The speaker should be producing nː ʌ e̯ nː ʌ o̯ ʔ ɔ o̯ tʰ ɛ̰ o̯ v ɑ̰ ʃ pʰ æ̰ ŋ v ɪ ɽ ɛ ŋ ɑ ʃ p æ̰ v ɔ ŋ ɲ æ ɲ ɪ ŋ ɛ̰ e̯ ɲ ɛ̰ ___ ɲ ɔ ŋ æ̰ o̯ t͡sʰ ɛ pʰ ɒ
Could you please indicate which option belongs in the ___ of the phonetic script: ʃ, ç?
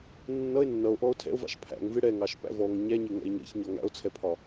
ç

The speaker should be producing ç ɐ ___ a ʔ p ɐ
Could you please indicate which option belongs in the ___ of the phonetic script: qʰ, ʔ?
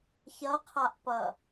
qʰ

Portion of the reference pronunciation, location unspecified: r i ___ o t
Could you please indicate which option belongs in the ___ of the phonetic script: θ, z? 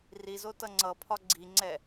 z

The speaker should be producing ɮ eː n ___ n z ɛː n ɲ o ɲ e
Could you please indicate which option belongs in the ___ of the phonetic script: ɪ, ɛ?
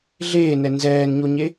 ɛ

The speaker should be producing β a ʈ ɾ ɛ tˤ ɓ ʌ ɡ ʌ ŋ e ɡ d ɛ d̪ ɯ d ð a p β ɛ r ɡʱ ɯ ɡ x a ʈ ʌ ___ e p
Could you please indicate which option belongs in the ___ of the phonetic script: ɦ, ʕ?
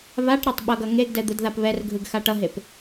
ɦ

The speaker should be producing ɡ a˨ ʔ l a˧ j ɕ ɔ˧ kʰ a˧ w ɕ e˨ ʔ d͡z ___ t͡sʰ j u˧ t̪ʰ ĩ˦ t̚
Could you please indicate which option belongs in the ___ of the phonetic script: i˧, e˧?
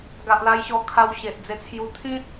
e˧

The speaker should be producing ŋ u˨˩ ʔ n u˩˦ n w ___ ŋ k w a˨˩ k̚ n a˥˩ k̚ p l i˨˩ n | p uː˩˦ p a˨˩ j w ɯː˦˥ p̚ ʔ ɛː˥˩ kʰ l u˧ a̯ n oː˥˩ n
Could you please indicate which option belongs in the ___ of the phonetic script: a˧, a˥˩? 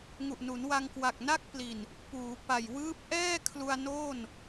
a˧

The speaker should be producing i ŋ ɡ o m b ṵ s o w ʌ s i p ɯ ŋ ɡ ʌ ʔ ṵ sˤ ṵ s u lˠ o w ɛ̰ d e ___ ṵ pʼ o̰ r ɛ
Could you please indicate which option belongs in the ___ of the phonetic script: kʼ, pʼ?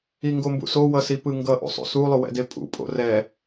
pʼ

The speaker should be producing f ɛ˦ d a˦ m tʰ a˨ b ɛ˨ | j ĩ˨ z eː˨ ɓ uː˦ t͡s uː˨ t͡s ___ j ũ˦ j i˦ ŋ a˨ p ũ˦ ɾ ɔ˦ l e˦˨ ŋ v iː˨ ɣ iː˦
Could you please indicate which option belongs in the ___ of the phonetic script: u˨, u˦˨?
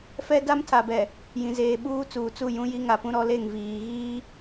u˦˨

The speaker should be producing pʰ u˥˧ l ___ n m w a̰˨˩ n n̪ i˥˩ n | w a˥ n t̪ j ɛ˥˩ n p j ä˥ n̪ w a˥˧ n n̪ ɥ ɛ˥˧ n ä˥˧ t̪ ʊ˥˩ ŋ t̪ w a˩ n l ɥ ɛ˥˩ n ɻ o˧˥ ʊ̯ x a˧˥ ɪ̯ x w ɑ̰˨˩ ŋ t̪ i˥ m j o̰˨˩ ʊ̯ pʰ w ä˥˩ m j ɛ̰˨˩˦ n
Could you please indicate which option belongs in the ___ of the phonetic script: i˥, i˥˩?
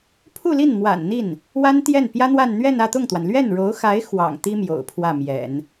i˥˩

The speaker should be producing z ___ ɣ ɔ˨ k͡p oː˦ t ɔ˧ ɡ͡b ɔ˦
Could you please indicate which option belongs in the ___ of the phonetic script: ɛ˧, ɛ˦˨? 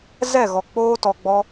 ɛ˦˨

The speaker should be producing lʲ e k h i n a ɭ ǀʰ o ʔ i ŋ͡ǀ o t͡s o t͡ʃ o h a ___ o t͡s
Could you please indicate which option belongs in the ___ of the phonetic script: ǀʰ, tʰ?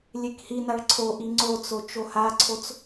ǀʰ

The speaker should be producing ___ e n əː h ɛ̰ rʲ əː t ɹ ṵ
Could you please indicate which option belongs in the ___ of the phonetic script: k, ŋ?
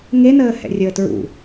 ŋ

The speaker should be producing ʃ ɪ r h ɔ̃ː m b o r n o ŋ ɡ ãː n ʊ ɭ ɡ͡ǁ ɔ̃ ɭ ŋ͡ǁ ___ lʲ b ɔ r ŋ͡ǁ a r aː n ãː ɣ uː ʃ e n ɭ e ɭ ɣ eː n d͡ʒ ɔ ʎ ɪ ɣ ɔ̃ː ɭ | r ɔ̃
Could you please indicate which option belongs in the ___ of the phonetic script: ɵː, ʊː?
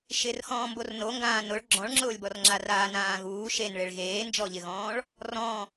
ʊː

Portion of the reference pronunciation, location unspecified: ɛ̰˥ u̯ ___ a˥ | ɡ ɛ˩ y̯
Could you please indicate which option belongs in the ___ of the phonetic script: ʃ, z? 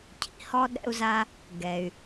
z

